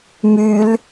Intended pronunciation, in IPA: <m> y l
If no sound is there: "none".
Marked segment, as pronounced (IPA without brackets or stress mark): m